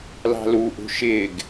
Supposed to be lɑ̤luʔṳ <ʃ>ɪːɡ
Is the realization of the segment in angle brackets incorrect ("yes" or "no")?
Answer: no